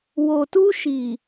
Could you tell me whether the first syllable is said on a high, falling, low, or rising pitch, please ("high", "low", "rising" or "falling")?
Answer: low